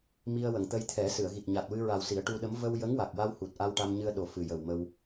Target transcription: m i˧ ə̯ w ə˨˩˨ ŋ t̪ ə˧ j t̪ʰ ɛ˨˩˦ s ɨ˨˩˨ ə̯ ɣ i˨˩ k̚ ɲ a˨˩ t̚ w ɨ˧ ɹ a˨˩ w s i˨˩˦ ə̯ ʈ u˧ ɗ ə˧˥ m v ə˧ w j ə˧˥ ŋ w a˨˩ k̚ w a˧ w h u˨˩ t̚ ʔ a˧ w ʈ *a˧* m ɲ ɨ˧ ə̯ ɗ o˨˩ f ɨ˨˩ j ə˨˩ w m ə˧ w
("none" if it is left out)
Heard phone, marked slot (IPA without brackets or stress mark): a˧